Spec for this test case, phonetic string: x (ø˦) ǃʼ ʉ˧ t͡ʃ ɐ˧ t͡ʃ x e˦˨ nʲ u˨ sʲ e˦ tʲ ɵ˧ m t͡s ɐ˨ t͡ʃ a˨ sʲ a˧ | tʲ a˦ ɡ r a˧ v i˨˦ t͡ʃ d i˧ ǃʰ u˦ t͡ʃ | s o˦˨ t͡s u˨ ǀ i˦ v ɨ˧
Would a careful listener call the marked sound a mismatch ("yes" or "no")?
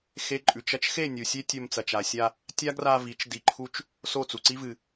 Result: yes